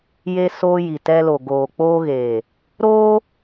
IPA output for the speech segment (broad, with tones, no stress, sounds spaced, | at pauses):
j e˧ s oː˧ j i˨ t ɛ˧ l o˨ ɡ oː˨ k͡p oː˧ ɣ eː˨ | ɾ oː˧